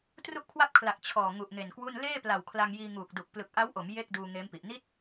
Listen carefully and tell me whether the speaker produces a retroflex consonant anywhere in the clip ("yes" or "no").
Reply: no